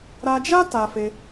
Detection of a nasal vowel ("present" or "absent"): absent